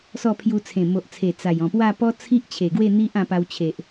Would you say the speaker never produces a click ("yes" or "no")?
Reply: yes